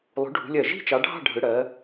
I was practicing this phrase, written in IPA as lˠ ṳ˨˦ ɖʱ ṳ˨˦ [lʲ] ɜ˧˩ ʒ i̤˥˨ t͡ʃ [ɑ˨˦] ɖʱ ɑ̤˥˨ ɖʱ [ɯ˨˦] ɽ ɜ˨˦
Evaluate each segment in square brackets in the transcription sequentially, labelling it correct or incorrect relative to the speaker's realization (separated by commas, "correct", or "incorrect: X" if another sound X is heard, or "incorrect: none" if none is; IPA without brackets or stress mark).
correct, correct, correct